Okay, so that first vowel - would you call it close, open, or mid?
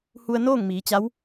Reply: close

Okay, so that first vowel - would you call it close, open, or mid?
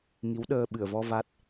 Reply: close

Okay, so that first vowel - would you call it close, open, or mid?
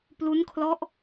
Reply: close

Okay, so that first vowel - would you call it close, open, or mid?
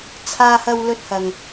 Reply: open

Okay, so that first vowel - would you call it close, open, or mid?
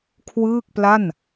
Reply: close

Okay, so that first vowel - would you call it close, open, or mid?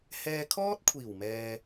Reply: mid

